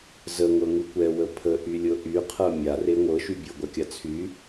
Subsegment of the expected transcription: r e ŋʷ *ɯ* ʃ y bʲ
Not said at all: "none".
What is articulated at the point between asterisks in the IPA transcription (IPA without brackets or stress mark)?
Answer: ɤ